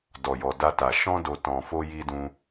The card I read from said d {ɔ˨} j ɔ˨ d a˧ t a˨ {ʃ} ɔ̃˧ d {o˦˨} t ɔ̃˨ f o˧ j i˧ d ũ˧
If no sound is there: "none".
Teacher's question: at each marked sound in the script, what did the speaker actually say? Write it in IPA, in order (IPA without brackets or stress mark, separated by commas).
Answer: ɔ˨, ʃ, o˨